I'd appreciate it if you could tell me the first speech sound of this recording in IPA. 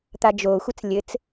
t̪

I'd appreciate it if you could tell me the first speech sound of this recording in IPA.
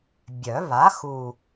bʲ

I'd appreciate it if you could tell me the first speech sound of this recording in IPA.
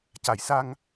c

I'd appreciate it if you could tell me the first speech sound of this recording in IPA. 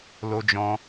l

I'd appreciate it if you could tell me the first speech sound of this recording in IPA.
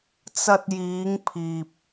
t͡s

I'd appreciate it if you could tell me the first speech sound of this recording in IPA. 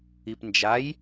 i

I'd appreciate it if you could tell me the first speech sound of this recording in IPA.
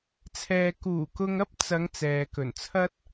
t͡sʰ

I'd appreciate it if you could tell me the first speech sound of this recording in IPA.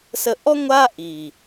s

